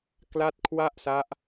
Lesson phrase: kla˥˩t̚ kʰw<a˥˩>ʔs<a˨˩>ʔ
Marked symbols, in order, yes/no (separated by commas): yes, no